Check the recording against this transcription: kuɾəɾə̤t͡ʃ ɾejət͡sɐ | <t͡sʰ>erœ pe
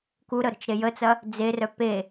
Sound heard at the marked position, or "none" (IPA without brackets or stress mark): d͡z